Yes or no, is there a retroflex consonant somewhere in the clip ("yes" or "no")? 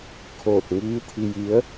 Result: no